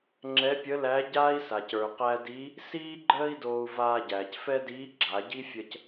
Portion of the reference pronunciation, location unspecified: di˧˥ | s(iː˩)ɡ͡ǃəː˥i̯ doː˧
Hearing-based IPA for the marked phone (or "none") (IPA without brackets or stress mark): iː˥